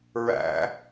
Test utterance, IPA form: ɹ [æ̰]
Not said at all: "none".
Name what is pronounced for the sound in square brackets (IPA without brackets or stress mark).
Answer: æ̰